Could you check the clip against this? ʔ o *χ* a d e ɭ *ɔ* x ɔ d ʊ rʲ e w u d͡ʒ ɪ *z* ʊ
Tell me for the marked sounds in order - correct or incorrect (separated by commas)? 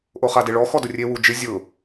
correct, correct, incorrect